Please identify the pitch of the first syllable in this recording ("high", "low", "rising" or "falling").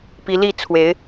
rising